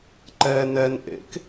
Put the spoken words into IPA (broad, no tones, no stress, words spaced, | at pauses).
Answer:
ǃɛ nɛn ʔḛk